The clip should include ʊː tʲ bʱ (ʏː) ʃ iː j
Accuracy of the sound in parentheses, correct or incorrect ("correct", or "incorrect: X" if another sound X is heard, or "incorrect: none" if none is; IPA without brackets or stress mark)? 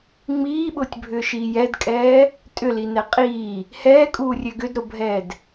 correct